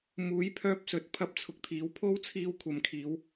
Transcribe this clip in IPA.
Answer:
m uː˨˥ j pʰ œː˧ p̚ s ɵ˨ t̚ pʰ ɐ˥ p̚ t͡sʰ ʊ˨˥ k̚ t̪ʰ iː˨˥ w pʰ o˥ w t͡sʰ iː˧ w kʷʰ ɐ˨ m kʰ iː˨˧ w

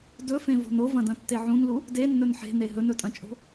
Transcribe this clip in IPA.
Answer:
d ɵ f ẽ v o̤ n o v ɐ̃ d ɐ̃ tː e ʕ ũ n l u | d e nː ɵ n ħ e̤ n e ɦ ɵ n ɵ tʼ ɐ̃ t͡ʃʼ o̤

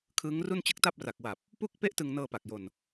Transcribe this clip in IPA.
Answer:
kʰ ɯː˦˥ ŋ r u˥˩ n t͡ɕ ɯ˦˥ k̚ t a˥˩ p̚ r a˨˩ k̚ w a˨˩ p̚ | p u˥˩ k̚ p e˥˩ ʔ t ɯ˧ ŋ n ɤː˧ p a˨˩ k̚ j o˧ n

